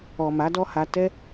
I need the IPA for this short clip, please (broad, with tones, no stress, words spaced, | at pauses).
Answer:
ɔ˨ma˨˦dɔ˦ha˧ tɛ˦